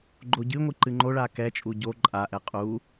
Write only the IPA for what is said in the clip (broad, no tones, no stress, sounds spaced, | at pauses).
ɡ͡ǃ o ɟ ɨ ŋʷ ɨ ǃ ɨ ŋ͡ǃ o ɭ a k ɛ t͡ʃʼ u ɟ o ǃʼ a ʔ ɛ qʼ u